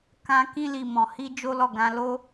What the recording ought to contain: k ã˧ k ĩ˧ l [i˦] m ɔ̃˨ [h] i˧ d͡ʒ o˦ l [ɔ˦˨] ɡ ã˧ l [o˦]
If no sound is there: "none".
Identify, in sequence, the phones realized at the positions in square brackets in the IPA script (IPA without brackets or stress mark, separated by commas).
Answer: i˨, h, ɔ˦˨, o˦